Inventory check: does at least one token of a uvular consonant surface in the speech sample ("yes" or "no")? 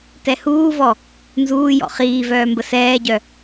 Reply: yes